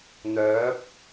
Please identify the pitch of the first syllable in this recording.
rising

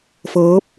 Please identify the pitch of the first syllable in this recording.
rising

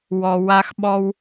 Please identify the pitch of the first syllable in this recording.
low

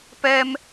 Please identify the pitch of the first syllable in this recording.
high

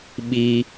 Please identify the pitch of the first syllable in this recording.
high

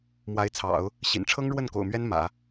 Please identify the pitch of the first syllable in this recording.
rising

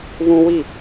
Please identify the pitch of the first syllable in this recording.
high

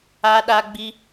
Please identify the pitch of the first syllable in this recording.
high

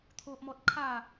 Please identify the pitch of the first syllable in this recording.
high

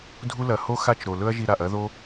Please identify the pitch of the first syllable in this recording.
high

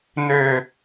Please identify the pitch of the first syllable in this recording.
falling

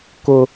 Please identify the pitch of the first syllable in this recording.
high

